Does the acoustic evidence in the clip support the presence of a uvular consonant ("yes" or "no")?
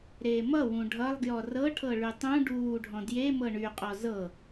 yes